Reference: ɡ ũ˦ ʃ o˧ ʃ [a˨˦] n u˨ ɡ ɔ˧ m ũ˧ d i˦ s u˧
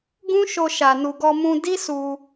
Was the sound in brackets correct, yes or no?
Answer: no